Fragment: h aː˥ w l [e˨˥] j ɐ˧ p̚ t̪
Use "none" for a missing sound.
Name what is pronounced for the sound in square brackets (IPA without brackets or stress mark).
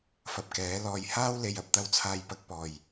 e˨